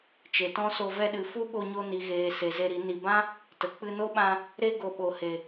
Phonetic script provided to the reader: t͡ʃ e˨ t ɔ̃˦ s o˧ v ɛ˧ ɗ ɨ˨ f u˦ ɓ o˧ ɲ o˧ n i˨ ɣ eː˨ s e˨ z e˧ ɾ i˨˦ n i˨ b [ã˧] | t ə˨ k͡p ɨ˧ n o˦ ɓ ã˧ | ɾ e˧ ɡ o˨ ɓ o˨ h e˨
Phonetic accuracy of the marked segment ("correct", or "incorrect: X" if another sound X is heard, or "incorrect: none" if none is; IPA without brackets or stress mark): incorrect: ã˦